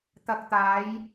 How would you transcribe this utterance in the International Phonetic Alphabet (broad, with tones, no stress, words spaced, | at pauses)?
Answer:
t̪ɐ˨k̚t̪aː˨˧j